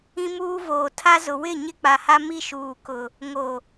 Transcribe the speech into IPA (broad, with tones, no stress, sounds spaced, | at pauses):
ĩ˦ m uː˦ v oː˨ tʰ a˦ z ʊ˨ w ɪ˦˨ ɲ ɪ˦ k͡p a˨ h a˦ m i˦ ʃ uː˨ k ʊ˨ | ŋ o˨